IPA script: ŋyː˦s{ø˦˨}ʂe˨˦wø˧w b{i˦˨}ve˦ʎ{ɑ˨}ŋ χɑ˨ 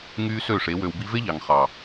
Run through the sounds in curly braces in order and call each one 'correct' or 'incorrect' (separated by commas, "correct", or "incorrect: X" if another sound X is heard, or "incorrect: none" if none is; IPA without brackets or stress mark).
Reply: correct, incorrect: i˧, correct